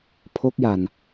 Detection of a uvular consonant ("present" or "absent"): absent